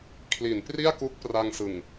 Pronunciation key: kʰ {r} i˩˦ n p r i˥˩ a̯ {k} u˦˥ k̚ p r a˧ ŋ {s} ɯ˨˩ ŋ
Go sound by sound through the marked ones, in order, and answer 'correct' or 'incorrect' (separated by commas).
incorrect, correct, correct